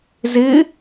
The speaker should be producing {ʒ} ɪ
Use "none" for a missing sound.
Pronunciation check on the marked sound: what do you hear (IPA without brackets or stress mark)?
z